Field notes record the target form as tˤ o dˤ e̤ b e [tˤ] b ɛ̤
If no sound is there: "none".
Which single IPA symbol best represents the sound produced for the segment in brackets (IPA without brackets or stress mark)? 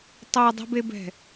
none